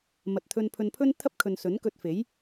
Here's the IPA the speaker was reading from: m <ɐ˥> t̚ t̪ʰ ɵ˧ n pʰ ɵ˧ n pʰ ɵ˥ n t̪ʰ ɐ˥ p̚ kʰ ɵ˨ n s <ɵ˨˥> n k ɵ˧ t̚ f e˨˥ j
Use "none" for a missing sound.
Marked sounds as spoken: ɐ˨, ɵ˨˥

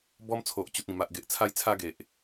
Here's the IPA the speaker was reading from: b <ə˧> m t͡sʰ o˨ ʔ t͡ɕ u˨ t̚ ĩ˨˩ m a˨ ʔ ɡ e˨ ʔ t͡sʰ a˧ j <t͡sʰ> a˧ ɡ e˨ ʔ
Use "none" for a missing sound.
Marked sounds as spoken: ɔ˧, t͡sʰ

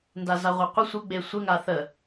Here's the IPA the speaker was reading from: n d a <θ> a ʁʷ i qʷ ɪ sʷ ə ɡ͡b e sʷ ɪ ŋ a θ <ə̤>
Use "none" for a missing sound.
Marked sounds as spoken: z, ə

